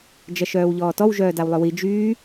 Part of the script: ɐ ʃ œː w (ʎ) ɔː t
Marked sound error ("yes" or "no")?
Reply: no